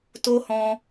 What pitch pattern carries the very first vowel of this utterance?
high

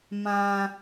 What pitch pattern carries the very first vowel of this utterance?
low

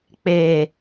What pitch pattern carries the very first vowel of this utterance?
low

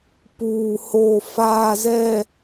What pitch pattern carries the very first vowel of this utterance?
low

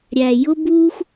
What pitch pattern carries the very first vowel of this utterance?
low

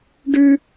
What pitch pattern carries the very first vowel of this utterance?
high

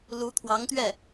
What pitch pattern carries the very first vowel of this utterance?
rising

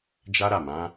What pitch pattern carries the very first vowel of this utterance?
high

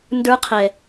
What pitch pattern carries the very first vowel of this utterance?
high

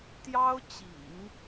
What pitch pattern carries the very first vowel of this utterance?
high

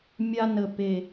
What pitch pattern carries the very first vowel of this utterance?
high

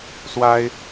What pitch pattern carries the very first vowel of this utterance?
high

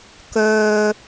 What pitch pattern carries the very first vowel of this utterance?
low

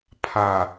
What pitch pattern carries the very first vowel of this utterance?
low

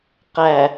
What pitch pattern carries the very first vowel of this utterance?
low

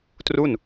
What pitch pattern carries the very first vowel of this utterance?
falling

